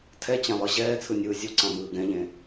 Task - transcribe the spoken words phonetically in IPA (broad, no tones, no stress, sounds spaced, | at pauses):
tʰ ɛ t͡ɕ ã lˠ ɯ ʑ ɛː t͡sʰ ɯ nʲ ɯː zʲ u ǀ ã m ɯː ɡ ɛ̃ ʎ ẽ